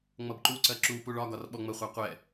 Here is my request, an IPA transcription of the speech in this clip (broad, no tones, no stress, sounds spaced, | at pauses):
ŋ͡m ʌ b ǃ u ǀ ɜ ǁ u p u ɭ ɒ ɡ ɒ r ɓ ɔ ŋ͡m ə χʷ ɑ qʷ ɛ